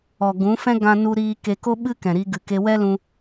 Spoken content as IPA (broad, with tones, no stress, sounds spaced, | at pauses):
ɔ˨ ɡ ũ˨˦ f ɛ̃˦ ɡ ã˧ n u˧ ɾ iː˧ k e˧ k o˦ ɓ ɨ˦ k ɛ̃˨ ɾ i˧ ɡ ɨ˨ k e˧ w ɛ˦ l ũ˧